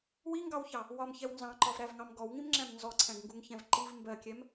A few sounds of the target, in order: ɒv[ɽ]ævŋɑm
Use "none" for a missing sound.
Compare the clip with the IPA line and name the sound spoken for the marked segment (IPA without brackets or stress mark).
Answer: ɾ